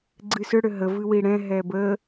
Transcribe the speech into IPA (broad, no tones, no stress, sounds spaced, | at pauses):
ɡ͡ǀ ɨ s ʏ ɽ ʏ ɦ ə v ɨ w i ɽ ɛ̃ ɦ ɛ b ə